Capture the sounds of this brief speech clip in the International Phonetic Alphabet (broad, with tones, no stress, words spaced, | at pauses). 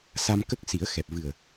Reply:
sa˧mkə˦˥k̚ si˨˩˦ə̯xɛ˨˩p̚vɨ˨˩ə̯